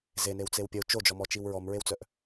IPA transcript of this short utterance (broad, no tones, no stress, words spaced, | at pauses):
zenew t͡sewpʲəu̯ t͡ʃod͡ʒɔmɔt͡ʃiw ɹɔmɹewt͡sœʔ